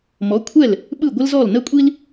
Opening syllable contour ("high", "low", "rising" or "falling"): rising